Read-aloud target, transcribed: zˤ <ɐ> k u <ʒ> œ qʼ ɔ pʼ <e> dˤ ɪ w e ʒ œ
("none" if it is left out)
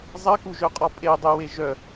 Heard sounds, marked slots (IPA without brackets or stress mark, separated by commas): ɐ, ʒ, e